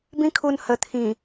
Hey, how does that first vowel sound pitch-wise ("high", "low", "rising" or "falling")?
high